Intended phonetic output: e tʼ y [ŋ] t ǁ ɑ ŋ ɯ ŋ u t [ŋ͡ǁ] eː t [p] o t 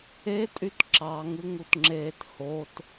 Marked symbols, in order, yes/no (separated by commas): no, yes, no